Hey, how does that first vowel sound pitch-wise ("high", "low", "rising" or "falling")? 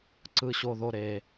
low